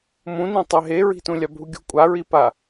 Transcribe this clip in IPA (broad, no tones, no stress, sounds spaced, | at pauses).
m ũ n ĩ tˤ e ɦ e ɹ i̤ t ũ lʲ a bʱ u ɡʲ ṳ kʷʼ a ɹ i p a